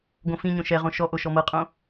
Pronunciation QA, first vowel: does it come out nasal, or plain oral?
nasal